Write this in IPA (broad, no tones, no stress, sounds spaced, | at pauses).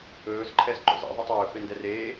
ɵː z ǃʰ ɛ z ǃ o̰ z ḛ ðˤ ɯ tˤ ɵː f e n d ɛ r eː